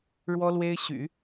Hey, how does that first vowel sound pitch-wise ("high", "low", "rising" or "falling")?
high